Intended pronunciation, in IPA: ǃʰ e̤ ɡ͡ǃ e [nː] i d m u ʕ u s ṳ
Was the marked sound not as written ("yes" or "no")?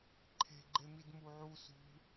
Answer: yes